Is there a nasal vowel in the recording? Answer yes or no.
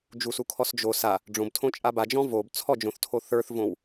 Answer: yes